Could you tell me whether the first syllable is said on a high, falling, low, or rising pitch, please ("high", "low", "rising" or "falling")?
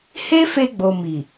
high